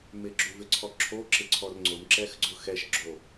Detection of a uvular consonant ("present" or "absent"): absent